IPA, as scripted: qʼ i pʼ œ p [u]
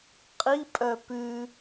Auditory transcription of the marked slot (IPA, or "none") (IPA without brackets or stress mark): ʉ